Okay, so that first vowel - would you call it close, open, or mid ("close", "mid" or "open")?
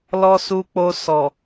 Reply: mid